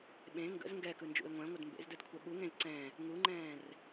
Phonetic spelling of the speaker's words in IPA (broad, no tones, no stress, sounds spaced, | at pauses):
ɓ ẽ ŋ ɡ ə̰ z ŋ ɡ ɛ k ɯ n d͡ʒ ṵ e̯ ŋʷ ɛ̃ ŋʷ ə d m b ḛ z d ɯ d kʷʰ ɛ ɓ u ŋ ẽ z ǀ ɛ̃ | ŋ u ŋ͡ǃ ɛ̃ː r